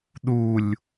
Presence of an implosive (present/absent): present